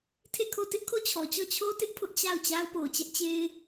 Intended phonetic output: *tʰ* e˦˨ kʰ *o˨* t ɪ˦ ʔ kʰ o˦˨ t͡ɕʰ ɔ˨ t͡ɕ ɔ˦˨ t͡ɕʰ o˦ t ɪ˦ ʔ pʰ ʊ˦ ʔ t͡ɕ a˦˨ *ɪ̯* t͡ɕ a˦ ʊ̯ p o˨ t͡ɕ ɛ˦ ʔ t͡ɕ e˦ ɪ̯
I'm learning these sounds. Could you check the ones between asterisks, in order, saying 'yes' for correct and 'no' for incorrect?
yes, no, no

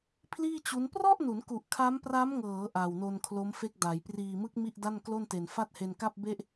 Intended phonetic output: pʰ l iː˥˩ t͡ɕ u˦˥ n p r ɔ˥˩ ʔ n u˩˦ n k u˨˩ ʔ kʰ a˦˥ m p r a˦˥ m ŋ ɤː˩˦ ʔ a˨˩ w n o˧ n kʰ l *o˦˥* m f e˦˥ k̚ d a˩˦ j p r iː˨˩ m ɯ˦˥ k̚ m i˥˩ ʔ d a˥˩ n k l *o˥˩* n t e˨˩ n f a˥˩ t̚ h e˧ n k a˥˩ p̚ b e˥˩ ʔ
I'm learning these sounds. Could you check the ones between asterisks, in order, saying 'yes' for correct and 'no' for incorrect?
yes, yes

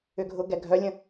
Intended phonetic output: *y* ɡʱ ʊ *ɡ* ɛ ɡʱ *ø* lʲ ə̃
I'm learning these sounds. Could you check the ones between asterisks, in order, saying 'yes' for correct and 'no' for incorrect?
no, yes, no

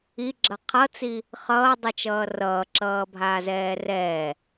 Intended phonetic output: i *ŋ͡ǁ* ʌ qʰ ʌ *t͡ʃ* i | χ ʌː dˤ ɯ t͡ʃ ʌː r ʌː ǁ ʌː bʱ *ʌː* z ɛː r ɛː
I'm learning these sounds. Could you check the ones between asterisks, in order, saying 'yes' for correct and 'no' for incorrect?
no, no, no

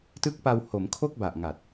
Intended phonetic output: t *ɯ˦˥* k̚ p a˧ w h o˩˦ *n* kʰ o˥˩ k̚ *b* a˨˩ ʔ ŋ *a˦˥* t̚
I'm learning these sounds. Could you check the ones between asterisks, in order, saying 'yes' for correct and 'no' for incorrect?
yes, no, yes, no

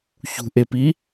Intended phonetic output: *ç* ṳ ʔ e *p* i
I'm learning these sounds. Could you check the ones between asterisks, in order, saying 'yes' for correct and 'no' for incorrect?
yes, yes

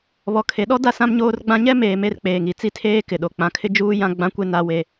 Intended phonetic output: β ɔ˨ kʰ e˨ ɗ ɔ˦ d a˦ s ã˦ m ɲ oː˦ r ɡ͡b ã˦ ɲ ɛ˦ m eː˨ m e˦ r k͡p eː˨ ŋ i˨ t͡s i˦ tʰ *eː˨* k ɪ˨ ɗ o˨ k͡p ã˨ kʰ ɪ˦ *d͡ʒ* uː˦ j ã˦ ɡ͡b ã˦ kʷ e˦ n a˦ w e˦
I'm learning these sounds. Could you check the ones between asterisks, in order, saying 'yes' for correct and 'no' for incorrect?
no, yes

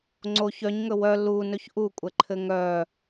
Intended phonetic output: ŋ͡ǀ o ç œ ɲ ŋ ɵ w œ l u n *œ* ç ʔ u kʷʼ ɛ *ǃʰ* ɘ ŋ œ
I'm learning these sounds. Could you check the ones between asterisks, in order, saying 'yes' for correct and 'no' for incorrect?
no, yes

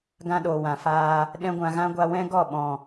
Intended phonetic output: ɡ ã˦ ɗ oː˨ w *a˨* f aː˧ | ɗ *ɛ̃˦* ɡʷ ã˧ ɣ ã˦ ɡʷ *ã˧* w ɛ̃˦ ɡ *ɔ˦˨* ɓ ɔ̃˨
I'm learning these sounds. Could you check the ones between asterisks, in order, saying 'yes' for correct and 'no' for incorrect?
no, yes, no, yes

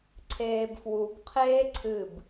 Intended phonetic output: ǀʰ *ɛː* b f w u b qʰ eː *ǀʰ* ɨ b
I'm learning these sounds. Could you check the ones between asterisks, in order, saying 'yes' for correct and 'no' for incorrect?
no, yes

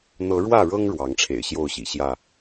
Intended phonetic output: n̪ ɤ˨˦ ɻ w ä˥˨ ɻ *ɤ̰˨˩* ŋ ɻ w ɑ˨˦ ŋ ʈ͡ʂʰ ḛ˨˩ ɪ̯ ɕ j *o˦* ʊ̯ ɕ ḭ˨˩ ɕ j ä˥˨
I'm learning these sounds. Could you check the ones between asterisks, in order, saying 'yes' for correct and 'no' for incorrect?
no, no

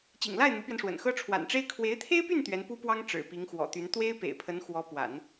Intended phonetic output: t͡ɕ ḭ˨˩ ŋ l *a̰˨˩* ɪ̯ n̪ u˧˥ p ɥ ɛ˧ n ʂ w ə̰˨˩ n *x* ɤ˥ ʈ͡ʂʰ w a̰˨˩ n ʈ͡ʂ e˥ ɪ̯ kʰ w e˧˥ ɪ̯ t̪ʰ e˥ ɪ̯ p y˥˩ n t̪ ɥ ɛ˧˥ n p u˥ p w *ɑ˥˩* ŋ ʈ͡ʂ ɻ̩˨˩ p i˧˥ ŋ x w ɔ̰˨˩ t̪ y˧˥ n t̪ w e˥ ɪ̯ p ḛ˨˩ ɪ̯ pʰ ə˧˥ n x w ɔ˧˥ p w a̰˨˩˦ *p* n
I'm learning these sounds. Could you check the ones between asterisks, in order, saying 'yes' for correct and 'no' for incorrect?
no, yes, no, no

